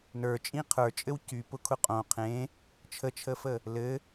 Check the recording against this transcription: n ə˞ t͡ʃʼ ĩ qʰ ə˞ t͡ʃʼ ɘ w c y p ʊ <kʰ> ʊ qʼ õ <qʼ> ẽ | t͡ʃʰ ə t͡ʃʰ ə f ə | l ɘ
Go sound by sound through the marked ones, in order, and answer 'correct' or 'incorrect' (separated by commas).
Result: correct, incorrect